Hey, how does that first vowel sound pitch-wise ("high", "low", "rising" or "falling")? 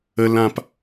high